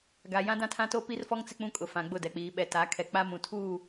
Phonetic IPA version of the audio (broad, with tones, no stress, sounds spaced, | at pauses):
ɡ a˨ j ã˦ d ã˦ tʰ ã˦ t o˦ p i˦ r f ɔ˦ ŋ t͡s ɪ˦ k͡p ũ˦ kʼ ʊ˨ f ã˨ ɡ͡b ʊ˦˨ d ɛ˨ k͡p iː˨ ɓ ɛ˨ t a˨˦ kʰ ɛ˨ k͡p a˦ m ũ˨ tʰ uː˦˨